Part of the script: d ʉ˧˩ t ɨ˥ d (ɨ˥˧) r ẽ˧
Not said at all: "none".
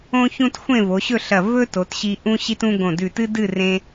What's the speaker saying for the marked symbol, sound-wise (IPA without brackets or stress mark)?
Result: ɨ˥˧